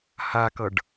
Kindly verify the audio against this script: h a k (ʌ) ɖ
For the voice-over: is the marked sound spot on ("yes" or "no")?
yes